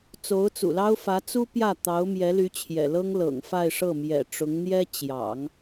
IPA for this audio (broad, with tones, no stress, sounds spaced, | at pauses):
t͡s o˧˥ ʊ̯ t͡s ṵ˨˩ l ɑ˥ ʊ̯ f ä˧˥ t͡s u˥ p j ä˥˩ t̪ ɑ˧˥ ʊ̯ m j ɛ˧˥ l y˧˥ t͡ɕʰ j ɛ̰˨˩ l ɤ˥ ŋ l ɤ̰˨˩ ŋ f a˥˧ ɪ̯ ʂ ɤ˥˩ m j ɛ̰˨˩ ʈ͡ʂ ʊ˧˥ ŋ n̪ j ɛ˥ t͡ɕ j ɑ̰˨˩˦ ŋ